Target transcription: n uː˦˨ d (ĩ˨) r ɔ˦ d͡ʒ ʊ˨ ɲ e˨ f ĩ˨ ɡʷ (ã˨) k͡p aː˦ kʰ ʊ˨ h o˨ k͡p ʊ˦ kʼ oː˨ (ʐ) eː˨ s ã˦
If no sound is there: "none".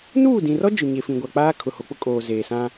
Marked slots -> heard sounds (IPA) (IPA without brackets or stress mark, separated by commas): ĩ˨, a˨, z